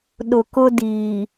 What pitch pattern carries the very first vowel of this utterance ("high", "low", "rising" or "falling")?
low